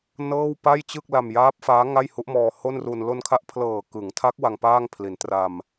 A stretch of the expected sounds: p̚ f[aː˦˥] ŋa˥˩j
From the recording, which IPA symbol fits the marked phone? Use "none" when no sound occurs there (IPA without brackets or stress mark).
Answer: aː˦˥